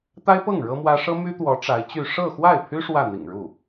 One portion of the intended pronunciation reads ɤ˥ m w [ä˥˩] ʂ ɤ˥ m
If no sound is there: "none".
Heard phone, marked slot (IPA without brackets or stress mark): ä˥